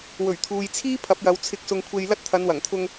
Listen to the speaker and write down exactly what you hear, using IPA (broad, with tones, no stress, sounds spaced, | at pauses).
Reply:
w ɵ˨˩ ɥ t̪ʰ uː˨ j t͡sʰ iː˥ pʰ ɐ˨˥ p̚ j ɐ˨˧ w t͡sʰ ɪ˧ k̚ s ʊ˧ ŋ kʷʰ e˧ j l ɐ˥ t̚ t̪ʰ ɐ˨˧ n w ɐ˨˩ ŋ t̪ʰ ʊ˧ ŋ